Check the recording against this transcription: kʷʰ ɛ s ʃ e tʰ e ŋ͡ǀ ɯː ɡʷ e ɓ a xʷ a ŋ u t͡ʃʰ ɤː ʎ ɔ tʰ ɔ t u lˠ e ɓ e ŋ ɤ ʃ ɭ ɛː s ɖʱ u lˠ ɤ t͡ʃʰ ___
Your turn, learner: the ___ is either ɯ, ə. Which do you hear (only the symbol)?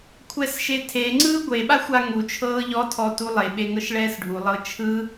ɯ